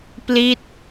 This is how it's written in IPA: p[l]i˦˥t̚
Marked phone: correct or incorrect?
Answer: correct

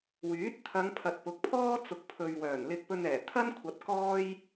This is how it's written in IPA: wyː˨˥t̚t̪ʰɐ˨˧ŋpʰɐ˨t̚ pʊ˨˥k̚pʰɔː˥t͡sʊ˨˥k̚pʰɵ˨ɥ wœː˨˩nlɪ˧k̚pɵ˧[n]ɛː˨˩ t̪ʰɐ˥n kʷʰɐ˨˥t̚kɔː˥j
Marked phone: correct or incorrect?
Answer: correct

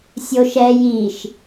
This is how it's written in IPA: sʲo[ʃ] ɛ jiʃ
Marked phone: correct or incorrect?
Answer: correct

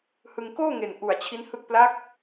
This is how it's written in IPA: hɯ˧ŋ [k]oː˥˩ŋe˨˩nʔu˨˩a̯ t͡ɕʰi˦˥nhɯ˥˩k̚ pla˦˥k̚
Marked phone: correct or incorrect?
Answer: correct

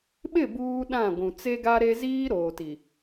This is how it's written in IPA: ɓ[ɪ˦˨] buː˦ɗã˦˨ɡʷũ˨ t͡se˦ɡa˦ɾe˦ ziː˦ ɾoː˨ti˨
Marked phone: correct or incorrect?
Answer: correct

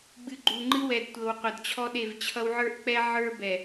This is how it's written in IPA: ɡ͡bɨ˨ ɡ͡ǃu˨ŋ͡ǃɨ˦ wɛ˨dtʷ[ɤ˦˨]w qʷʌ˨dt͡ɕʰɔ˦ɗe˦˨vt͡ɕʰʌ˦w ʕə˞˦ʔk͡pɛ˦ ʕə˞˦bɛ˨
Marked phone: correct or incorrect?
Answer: incorrect: ɤ˨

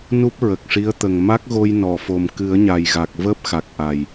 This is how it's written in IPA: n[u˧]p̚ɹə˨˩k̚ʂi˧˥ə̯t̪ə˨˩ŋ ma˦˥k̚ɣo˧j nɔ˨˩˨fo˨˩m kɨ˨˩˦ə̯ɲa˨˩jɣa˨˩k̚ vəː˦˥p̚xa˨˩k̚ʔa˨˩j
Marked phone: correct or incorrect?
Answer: incorrect: u˦˥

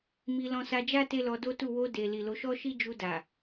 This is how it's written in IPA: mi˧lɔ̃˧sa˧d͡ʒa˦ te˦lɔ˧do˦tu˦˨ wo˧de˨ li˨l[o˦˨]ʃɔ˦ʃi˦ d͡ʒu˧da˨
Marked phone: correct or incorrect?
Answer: incorrect: o˨˦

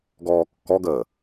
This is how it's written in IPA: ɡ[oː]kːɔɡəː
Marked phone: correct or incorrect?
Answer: incorrect: ɔː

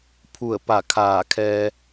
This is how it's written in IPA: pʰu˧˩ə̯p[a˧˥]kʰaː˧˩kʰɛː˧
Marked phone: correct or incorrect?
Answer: incorrect: a˧˩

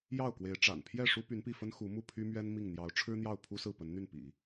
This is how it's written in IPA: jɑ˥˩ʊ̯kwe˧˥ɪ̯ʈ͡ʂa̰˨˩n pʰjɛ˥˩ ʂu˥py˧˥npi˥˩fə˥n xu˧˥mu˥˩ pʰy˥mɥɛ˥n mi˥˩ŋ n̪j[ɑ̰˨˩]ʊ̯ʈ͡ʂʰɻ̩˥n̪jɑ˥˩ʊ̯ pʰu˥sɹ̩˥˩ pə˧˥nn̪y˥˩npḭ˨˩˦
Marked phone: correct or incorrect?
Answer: incorrect: ɑ˧˥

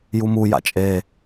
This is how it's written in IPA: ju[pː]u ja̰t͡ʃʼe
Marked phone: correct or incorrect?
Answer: incorrect: m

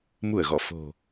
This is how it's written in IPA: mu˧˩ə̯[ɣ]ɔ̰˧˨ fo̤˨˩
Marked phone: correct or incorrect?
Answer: correct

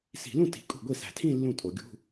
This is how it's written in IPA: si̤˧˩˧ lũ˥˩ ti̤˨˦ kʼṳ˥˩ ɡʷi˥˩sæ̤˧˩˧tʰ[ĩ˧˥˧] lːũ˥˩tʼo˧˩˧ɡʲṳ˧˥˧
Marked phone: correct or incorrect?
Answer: incorrect: ĩ˥˧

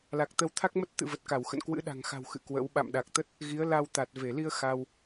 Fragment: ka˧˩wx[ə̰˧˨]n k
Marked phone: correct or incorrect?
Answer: correct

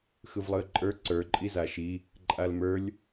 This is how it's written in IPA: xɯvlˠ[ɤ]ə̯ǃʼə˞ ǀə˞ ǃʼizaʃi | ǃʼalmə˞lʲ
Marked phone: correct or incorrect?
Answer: incorrect: ɯ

